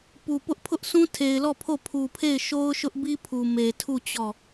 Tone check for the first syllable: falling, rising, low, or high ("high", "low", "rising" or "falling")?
low